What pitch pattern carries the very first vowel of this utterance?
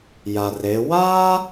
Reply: low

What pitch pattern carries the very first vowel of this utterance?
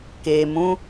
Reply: low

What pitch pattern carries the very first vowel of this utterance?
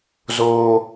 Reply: high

